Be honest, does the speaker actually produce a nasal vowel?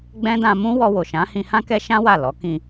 yes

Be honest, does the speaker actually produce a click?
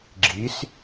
yes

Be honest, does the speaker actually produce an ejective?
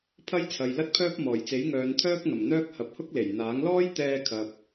no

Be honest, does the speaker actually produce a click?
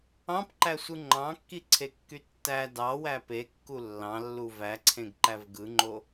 yes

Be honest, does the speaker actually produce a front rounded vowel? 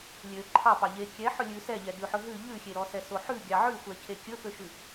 yes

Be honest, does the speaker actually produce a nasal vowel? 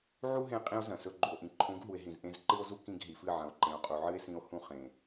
yes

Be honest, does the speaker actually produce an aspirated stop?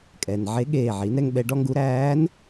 no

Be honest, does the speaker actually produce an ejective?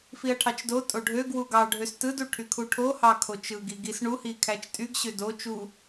yes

